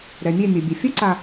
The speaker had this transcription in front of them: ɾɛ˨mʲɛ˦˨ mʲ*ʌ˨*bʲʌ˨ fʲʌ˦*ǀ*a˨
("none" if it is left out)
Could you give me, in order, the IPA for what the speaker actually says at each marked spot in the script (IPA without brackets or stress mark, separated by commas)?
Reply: ʌ˨, ǀ